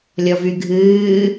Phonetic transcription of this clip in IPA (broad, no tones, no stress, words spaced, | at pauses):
lʲɔvyɡʱɨː